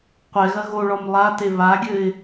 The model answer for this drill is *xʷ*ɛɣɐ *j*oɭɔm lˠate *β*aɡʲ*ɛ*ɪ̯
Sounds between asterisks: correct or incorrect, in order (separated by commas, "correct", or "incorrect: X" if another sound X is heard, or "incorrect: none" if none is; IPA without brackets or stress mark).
incorrect: qʷ, incorrect: ɣ, correct, incorrect: ɘ